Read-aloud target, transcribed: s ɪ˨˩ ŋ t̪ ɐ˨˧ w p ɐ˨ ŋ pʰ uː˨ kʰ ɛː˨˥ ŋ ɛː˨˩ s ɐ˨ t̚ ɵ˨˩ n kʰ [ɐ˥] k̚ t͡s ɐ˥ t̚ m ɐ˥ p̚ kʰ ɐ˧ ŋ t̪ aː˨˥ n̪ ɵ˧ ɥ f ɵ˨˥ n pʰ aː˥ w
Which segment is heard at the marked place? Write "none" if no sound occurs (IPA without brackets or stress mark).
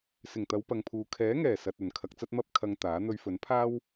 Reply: ɐ˧